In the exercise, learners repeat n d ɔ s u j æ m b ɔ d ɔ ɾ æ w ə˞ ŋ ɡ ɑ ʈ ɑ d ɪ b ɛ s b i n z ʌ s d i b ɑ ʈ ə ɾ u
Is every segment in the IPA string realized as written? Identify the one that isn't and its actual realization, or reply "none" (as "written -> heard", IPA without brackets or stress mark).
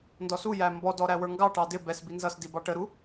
none